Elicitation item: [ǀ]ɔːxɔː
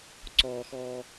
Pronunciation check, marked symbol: correct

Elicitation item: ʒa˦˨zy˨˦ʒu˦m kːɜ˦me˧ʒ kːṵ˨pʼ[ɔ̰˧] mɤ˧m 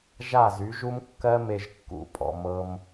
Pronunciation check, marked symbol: incorrect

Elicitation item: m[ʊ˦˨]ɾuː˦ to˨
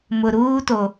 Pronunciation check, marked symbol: incorrect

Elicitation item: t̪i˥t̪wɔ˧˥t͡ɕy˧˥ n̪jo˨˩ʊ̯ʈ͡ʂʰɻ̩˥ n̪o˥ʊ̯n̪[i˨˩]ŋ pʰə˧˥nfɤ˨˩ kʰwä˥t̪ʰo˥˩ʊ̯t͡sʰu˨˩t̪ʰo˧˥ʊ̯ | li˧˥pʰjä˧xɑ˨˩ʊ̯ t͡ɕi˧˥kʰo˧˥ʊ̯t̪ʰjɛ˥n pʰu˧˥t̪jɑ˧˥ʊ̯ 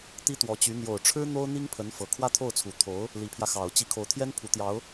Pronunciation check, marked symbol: incorrect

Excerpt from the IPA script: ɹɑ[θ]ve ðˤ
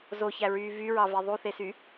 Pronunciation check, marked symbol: incorrect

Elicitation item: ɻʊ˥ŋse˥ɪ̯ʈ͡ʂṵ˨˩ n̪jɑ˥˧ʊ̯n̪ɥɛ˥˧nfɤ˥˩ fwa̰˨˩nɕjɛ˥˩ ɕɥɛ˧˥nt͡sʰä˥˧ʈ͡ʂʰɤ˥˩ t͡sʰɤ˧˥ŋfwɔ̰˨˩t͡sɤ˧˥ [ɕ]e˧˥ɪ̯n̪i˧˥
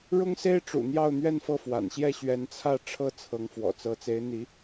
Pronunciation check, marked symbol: incorrect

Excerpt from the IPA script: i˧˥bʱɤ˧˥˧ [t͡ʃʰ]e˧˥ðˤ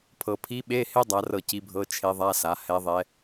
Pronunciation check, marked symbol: correct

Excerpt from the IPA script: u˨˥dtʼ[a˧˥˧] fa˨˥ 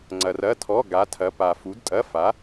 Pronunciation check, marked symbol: incorrect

